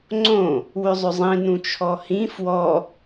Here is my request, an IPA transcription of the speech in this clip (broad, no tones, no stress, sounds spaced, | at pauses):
ŋ͡ǀ õ | w ʏ zˤ ʏ zˤ ĩ n ũ t͡ʃʰ ɔ h ĩ f w ɔ